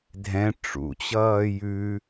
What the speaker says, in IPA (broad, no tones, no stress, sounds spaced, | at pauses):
dʱ ɛ̃ ʈ͡ʂ ṵ t͡ɕ ʌː j ʉ